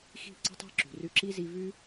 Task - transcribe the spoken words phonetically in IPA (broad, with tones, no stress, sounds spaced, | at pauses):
x i̤˦˨ ǀ ə̤˦ tˤ i̤˦ ǁ ṳ˨ r ʉ˧ ǁ i˦ z i˦ v ʉ˦